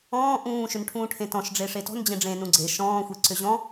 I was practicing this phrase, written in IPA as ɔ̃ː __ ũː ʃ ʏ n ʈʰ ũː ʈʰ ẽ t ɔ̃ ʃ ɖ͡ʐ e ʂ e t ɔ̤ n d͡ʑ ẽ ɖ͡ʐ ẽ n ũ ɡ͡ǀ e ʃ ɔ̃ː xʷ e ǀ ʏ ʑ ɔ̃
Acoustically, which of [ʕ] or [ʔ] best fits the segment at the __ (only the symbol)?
ʔ